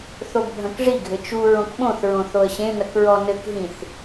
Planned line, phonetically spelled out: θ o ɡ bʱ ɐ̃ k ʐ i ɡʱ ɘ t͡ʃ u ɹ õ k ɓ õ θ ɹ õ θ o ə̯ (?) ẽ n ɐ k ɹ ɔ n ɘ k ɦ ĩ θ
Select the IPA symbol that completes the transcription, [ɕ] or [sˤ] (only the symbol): ɕ